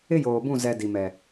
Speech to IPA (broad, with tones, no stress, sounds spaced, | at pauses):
ɪ˦ j oː˨ b ũ˦˨ z ɛ˨ d i˨ m ɛ˨